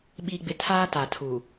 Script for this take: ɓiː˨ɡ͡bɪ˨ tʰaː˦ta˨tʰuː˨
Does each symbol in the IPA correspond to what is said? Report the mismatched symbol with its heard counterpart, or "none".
none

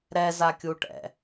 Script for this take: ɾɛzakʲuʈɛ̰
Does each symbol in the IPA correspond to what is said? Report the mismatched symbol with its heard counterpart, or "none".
none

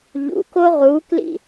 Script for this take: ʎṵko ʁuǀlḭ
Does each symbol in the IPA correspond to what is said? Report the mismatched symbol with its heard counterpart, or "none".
ǀ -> k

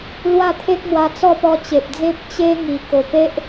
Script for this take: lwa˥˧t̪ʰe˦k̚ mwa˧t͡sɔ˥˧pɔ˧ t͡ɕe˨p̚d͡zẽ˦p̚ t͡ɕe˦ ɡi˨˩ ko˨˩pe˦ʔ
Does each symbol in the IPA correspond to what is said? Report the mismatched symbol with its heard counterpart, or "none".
ɡ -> ŋ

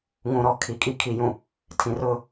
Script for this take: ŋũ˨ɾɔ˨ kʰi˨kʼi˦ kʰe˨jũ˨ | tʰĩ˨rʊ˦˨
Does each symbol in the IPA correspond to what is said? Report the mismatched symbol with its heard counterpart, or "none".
e˨ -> i˨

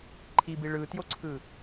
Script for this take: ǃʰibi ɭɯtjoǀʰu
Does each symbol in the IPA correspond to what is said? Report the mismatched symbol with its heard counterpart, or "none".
u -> ɯ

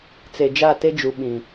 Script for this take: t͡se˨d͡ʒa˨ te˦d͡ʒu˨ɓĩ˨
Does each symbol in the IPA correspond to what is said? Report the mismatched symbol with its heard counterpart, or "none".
a˨ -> a˦˨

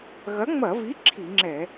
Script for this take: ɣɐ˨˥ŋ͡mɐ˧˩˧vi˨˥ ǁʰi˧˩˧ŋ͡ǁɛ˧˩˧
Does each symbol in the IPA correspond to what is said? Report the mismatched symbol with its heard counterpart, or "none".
none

